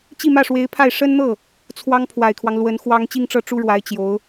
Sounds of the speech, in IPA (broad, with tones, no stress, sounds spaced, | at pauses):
t͡ɕ i˥˧ m ä˥˩ ʂ w e˧˥ ɪ̯ pʰ a˥˩ ɪ̯ ʂ ə˥ n n̪ ɤ˥˩ | t͡sʰ w ɑ˥ ŋ pʰ w a˨˩ ɪ̯ kʰ w ɑ˦ ŋ l w ə˧˥ n x w ɑ˥ ŋ t͡ɕ i˥˧ ŋ ʈ͡ʂ ɤ˥˩ ʈ͡ʂ u˥ ɻ w a˧˥ ɪ̯ t͡ɕ j o˧˥ ʊ̯